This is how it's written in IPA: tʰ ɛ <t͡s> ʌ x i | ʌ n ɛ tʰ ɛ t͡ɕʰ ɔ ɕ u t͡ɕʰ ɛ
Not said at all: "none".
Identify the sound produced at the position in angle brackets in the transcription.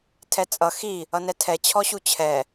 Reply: t͡sʼ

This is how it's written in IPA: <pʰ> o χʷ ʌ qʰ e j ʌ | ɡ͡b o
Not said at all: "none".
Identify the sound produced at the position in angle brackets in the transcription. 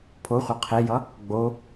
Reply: pʰ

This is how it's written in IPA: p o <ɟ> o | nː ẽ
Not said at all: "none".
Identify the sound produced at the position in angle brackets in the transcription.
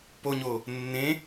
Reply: ɲ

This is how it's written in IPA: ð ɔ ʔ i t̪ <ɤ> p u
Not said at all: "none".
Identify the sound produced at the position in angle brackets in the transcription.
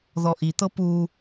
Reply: ɤ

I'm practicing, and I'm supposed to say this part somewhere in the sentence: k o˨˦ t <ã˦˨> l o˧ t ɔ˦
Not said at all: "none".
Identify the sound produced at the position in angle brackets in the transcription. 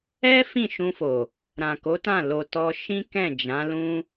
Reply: ã˦˨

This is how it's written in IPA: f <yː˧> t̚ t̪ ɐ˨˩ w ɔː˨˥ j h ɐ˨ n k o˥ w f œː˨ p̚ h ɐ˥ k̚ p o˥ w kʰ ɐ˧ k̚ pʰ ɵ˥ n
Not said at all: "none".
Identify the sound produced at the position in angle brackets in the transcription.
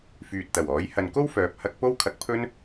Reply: yː˨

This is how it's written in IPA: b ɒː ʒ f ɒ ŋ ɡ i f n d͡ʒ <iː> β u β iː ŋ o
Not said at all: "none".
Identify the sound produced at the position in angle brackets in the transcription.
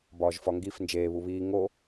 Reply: eː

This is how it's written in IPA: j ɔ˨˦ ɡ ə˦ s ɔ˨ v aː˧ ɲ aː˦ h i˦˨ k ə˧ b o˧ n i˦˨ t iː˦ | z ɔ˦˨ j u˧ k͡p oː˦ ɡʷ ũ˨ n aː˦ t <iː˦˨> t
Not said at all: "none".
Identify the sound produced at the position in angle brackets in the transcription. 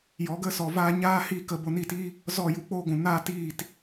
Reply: iː˦˨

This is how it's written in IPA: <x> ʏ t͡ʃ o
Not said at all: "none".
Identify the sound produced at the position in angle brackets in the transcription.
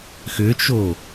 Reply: x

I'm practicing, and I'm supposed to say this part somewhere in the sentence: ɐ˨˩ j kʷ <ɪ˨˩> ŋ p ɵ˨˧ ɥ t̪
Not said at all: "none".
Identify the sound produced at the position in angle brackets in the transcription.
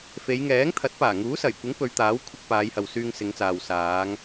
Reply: ɪ˨˥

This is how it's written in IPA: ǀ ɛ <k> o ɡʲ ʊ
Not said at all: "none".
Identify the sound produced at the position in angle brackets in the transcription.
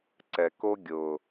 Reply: k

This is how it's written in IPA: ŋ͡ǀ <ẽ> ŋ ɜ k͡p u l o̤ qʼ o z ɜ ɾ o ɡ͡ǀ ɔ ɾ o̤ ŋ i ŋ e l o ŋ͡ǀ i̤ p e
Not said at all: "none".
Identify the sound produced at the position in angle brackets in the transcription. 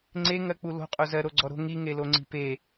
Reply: e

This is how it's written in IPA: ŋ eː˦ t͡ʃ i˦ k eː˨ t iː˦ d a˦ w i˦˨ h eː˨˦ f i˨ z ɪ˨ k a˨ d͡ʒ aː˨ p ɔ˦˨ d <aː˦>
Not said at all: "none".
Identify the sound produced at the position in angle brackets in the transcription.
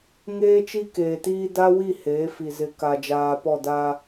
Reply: aː˦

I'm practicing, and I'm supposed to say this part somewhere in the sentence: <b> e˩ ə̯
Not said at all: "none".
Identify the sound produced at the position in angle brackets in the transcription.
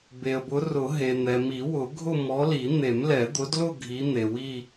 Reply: b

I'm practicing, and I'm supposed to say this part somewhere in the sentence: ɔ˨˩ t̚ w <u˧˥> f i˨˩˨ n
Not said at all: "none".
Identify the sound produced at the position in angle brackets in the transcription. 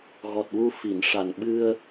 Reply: u˧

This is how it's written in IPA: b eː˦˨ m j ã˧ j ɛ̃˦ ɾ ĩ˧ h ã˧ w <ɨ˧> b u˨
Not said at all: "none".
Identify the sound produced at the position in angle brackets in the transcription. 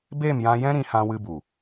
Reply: ɨ˧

